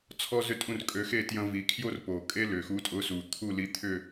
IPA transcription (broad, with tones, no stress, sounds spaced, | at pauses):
t͡sʰ ɔ˦ z ʏ˦˨ tʼ ũ˦˨ r kʼ ø˨˦ x e˦˨ t j ɐ̃˦ v i˨˦ kʰ j o˦ r p o˨˩ kʼ e˦ l ʏ˨˩ x u˨˦ tʼ ʊ˨˦ s u˨˩ t̪ʰ u˦˨ l i˨˦ t̪ʰ ʏ˦˨